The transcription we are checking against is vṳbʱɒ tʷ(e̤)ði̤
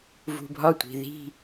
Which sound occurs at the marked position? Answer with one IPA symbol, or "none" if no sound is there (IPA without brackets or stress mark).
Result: i̤